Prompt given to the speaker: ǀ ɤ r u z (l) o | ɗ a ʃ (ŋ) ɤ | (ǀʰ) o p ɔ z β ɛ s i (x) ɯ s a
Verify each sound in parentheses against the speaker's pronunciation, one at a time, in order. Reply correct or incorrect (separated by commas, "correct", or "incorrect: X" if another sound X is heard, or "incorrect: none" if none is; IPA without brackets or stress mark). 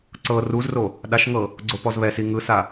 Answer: incorrect: r, correct, incorrect: ɡ͡ǀ, incorrect: ŋ